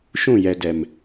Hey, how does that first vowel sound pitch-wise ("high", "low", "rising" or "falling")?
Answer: falling